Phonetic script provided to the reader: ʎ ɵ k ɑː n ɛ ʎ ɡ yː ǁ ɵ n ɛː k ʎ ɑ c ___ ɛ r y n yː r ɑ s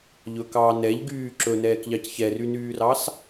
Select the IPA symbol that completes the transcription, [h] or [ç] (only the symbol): ç